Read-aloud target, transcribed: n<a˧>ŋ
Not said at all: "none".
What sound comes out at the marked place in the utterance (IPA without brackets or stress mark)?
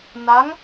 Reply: a˧˥